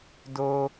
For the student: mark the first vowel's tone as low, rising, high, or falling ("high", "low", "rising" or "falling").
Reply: high